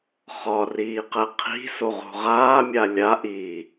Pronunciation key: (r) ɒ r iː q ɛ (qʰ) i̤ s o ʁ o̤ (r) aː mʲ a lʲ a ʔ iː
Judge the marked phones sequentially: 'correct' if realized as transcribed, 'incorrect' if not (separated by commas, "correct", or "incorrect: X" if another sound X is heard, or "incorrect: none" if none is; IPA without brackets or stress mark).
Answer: incorrect: χ, correct, incorrect: ʁ